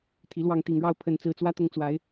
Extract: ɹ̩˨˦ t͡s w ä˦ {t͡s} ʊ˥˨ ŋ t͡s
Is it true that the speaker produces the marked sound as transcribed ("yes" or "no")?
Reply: no